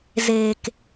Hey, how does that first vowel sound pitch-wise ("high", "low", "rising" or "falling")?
low